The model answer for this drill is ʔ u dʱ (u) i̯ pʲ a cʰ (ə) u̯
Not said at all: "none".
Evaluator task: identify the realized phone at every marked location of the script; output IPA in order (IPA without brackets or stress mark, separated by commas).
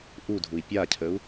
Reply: u, ə